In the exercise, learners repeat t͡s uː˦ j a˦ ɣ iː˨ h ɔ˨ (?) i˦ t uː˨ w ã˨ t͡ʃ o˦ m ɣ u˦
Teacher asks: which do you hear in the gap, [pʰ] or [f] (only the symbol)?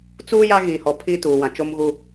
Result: pʰ